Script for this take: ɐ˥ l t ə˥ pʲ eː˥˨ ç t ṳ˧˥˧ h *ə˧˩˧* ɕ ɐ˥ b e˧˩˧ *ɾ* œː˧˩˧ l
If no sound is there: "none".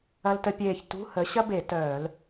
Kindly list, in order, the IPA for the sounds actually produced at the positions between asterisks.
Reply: ə˨˥, t

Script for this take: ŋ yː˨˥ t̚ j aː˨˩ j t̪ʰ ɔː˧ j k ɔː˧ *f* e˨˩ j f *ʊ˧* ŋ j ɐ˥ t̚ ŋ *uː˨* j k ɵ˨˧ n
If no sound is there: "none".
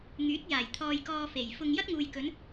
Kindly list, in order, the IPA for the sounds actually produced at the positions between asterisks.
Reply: f, ʊ˧, uː˨

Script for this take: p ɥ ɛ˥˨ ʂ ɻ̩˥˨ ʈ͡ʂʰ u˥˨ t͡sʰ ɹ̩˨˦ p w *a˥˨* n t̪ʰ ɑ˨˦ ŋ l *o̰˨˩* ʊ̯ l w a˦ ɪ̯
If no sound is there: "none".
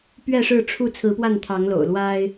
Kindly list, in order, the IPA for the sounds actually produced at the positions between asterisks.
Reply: a˥˨, o̰˨˩

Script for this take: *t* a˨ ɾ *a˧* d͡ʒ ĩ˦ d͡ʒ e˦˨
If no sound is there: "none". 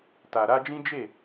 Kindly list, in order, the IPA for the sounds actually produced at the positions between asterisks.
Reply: t, a˧

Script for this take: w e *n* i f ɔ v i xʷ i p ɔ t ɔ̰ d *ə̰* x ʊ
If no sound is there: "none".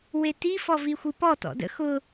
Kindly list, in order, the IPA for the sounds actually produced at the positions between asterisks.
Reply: t, ə̰

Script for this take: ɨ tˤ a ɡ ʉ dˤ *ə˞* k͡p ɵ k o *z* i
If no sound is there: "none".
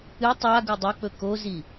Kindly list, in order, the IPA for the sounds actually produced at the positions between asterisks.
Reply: ɐ, z

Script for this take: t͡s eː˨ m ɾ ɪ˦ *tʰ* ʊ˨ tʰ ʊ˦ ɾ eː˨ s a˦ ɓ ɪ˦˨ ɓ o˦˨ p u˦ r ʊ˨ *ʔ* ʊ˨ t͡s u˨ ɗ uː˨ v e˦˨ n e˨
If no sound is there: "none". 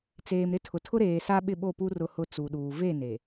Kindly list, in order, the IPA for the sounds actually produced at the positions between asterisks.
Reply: tʰ, h

